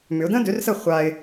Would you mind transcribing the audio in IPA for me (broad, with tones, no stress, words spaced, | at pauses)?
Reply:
mʏ˨˦ʊ̯ də̃˦dø˨˦rsə˦˨ χʷa˦ɪ̯